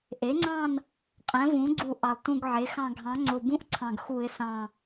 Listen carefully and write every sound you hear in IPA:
ʔ e˩˥ ŋ͡ǀ ɑ̃˦˨ n | qʼ ɛ̃˩˥ v ũ˩˥ ɡ͡ǀ u˧˩˧ ʔ ɑ˨˩ lˠ t ũ˦˨ ɡ ʕ e˩˥ x ɑ̃˦˨ ɡʱ ɑ̃˩˥ ŋ͡ǀ o˨˩ b ũ˦˨ ʔ ǀʰ ɑ̃˨˩ ɡ x u˧˩˧ ɪ̯ s ɑ̃˨˩

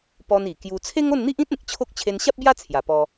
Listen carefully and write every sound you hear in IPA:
p ɔ˧ n i˨˩ k j u˧ t͡sʰ e˦ ŋ o˥˧ n n̪ i˦ ʔ ĩ˦ t̚ ẽ˨ k̚ t͡ɕʰ o˦ k̚ t͡ɕʰ e˧ n ɕ a˦ p̚ b j a˦ t͡sʰ j a˨˩ p ɔ˧

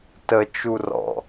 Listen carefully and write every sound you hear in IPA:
t ə t͡ʃ u r ɔ̰

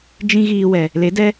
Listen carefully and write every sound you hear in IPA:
d͡ʒ ĩ˦ ɣ iː˧ w ɛ˨ | l e˨˦ d ɛ˦

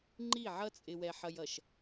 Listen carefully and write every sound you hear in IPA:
ŋ͡ǃ i˦˨ ʕ ʌ˦ t͡sʼ ɪ˨ w ɛ˨ ħ ʌ˨ j ʌ˨ ʃ

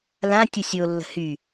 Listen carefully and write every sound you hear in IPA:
l ã tʲ ə sʲ o lː ə̤ h y

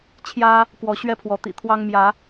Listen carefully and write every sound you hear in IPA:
t͡ɕʰ j ä˦ | k w ɔ˨˦ ɕ ɥ ɛ˦ pʰ w ɔ˨˦ t̪ ḭ˨˩ t̪ʰ w ɑ˦ ŋ m j ä˨˦

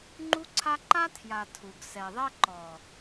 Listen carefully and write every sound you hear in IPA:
ŋ͡ǃ u˦ ǀʰ a˦ ǃ a˦ tʰ j a˨ tʰ u˨ ɡ s ɛ˨ ðˤ ɛ˦ ǃ ɔ˨

